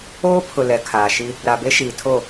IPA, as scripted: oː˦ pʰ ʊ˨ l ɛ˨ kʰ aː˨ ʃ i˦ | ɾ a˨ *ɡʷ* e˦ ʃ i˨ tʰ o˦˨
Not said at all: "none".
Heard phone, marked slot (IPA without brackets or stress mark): b